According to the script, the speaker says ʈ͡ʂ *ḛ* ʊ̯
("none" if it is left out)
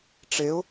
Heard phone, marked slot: e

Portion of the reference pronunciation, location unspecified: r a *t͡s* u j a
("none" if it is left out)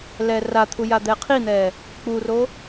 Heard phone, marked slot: t̪ʰ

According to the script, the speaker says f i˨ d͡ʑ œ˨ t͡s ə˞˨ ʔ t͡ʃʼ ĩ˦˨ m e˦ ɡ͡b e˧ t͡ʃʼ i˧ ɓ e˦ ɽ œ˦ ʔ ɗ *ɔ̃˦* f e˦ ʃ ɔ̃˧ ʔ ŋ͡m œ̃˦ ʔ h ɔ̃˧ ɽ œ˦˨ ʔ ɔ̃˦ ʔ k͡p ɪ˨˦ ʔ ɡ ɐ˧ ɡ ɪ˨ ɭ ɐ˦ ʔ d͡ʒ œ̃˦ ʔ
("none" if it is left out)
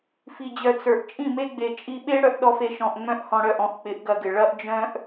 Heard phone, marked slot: ɔ˦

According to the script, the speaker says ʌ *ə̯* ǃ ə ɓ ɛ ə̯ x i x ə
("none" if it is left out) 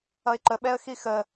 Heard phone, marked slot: ɪ̯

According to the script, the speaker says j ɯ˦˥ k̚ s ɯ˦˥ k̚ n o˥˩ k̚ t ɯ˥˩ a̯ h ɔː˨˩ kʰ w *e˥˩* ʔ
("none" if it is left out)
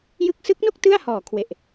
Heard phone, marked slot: e˨˩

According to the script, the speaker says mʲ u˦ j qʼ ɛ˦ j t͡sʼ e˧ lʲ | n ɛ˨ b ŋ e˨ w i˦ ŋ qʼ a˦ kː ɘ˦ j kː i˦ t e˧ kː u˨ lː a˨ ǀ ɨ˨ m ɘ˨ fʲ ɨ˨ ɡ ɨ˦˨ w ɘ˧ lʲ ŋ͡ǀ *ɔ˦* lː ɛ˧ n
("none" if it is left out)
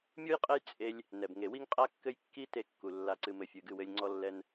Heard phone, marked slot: ɔ˧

